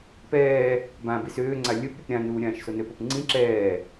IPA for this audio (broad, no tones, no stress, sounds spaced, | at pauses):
p ɛː | b ã b i s øː ŋ͡ǀ a lʲ ɵ p ɾʲ ʊ p ɾʲ ã n uː ɾʲ ãː ʃ s o n ø p o p ŋ͡ǀ ĩ ǁ ɛː